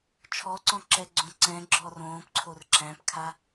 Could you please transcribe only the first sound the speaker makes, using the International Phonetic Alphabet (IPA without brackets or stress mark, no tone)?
t͡ʃʰ